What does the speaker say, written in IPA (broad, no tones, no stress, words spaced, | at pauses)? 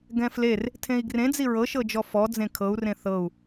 ɡɛ̃fler | tʰẽi̯ɡrẽd͡zi ɹɤʃɤd͡ʒɔ fɔ d͡zẽkʰɤu̯rẽ θɤu̯